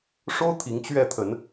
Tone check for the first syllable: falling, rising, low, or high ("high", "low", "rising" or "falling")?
high